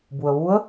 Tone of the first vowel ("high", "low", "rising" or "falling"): low